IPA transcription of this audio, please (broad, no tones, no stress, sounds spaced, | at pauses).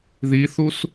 ð i θ u s